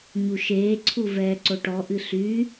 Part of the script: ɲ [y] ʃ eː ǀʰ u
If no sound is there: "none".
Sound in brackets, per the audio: u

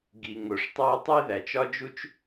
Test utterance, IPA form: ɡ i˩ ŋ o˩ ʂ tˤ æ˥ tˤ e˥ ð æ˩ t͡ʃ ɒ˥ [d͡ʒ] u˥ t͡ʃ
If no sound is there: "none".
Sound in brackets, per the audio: d͡ʒ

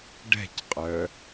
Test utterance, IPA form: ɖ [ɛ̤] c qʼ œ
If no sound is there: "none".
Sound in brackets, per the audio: ɛ̤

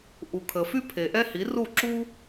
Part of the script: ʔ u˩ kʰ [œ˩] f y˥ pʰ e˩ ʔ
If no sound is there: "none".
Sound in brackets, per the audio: ə˩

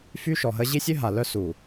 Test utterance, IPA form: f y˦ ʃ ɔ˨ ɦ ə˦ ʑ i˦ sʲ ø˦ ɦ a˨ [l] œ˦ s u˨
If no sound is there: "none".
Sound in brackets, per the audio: l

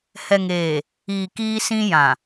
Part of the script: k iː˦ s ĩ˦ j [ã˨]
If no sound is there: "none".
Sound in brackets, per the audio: ã˨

